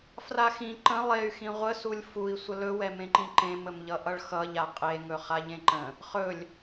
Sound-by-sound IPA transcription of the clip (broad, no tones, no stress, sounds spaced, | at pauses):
f r a x ĩ ǃ ə̃ lˠ e y̯ x ĩ ʁʷ ə s u lʲ f u i̯ sʷ ə l ɵ w ɛ m ẽ ǃ ĩ ǃ ẽ m ə m ʎ ʌ ʔ ʌ ɭ x ʌ ʎ a qʼ e ŋ ɵ χ a ʎ ẽ ǃ ə̃ | χ ɵ lʲ